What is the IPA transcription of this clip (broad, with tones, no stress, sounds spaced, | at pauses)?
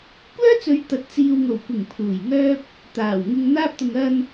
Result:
kʷ œː˥ t͡s ɵ˨˧ ɥ t̪ ɐ˨ t̚ t͡s iː˨ w ŋ o˨˩ w kʷ ɪ˨˩ ŋ pʰ uː˨˩ j ŋ œː˥ p̚ | t̪ aː˨˩ w ŋ ɪ˧ ŋ n̪ aː˧ p̚ t̪ ʊ˨ ŋ ɐ˧ n